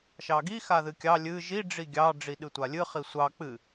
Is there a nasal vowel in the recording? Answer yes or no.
no